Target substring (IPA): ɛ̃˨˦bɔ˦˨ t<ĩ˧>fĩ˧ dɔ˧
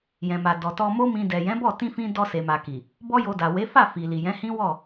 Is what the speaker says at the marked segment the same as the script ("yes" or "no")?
yes